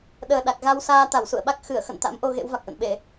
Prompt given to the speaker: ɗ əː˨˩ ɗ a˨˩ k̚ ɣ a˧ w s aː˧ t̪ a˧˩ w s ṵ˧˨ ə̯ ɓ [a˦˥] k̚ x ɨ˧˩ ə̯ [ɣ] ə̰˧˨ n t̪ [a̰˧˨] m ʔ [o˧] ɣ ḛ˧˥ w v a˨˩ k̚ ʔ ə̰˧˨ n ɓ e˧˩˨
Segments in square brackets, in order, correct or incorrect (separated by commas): correct, incorrect, incorrect, correct